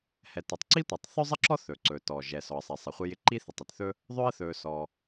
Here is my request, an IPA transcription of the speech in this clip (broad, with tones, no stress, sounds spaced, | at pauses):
h ɛ˩ t ɵ˩ tˤ ǀ i˥ tʷ ɛ˩ tˤ θ ɵ˥ zˤ ɪ˥ ǁ ɔ˥ θ ɵ˩ ǀ ɵ˩ t ɔ˩ ʒ ɛ˩ s ɔ˩ ə̯ sˤ ɛ˩ sˤ ɪ˩ χʷ ɪ˥ j ɪ˥ ǃ i˥ θ ɪ˩ tˤ ɪ˩ t θ ɵ˥ | ðˤ ɵ˥ ə̯ θ ɵ˩ s ɔ˩